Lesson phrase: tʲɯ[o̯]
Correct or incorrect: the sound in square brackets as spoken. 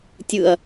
incorrect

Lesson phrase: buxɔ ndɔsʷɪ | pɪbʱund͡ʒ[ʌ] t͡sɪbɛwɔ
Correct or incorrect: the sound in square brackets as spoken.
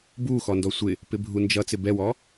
correct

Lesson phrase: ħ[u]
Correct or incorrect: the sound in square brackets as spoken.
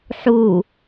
correct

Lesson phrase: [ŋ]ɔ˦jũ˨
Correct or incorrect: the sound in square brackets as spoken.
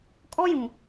incorrect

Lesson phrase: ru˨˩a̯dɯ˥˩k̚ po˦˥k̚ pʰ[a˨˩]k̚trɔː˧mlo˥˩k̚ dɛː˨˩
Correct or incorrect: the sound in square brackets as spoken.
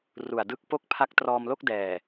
incorrect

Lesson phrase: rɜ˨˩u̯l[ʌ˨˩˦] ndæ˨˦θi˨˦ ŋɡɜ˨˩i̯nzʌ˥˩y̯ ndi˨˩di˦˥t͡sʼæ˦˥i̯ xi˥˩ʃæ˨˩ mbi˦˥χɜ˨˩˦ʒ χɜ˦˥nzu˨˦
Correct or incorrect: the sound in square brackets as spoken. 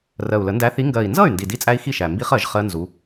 incorrect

